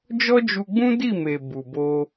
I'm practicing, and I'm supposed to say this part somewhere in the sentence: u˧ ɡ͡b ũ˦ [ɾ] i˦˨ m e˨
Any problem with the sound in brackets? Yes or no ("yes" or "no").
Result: yes